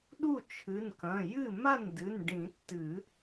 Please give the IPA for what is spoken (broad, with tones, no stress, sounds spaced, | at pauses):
ɗ u˥˩ t͡ʃʰ ɨ˩˧˩ n k ɐ̃˩˧˩ j ɨ˥˩ m a˥˩ n d ɨ˩˧˩ n ɖ ĩ˨˩˦ tː ɨ˨˩˦